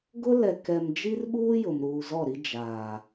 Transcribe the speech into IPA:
ɡ ʊ˦ l ɛ˨ k ɛ˨ m d͡ʒ i˦ r ɓ uː˦ j ʊ˨ m ɾ uː˨ z ɔ˦˨ ɾ i˦ d͡ʒ aː˨

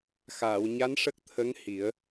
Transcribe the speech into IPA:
x aː˨˩˨ w ɲ a˧˥ n ʂ ə˦˥ k̚ t̪ʰ ə˧˥ ŋ h i˨˩˦ ə̯

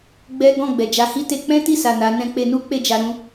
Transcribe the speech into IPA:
ɡ͡b ɛ˦ ɡ ɔ̃˦˨ ɡ͡b ɛ˨ d͡ʒ a˨˦ h i˦ t e˧ k͡p ɛ̃˦ t i˦˨ s a˨ n a˨˦ n ɛ̃˦ k͡p e˧ n u˦ k͡p e˦˨ d͡ʒ a˧ ɾ ũ˦

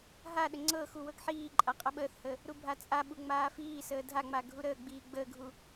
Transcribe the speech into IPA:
ɦ a ɗ ə ŋ͡ǀ ɤ x u w ɤ ɡ ħ iː ǃʼ a qʼ ə ɓ əː θ h ə | ɾ u bʱ a t͡sʼ a ɓ u ŋ͡m aː f iː s əː dʱ a ŋ͡m a ɡʱ u ɾ əː ɡ͡b iː ɡ͡b əː ɡʱ u

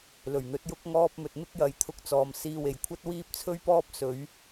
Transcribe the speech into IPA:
l ɵ˨˩ ɥ n̪ ɵ˨˥ t̚ j ʊ˧ k̚ ŋ ɔː˧ p̚ m ɵ˨ t̚ m ɪ˥ k̚ j ɐ˨ j t̪ʰ ʊ˧ k̚ t͡s ɔː˨ m s iː˧ w e˨ j kʷʰ ɐ˥ t̚ w iː˥ p̚ t͡sʰ ɵ˥ ɥ p ɔː˥ p̚ s ɵ˨˧ ɥ

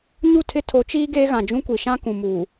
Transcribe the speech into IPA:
ɲ u˦˨ tʰ ɪ˦ tʰ o˨˦ t͡ʃ iː˦ ɡ eː˦ ɣ ã˨ d͡ʒ ũ˦ kʷ i˨ ʃ ã˦ k ũ˨ m uː˨

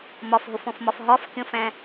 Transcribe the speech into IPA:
m ɒ f ɦ ʊ f ɔ̃ f m ɒ f ɦ ɒ f kʲ ɔ̃ f æ̃

